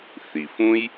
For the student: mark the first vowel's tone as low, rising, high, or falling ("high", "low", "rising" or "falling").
low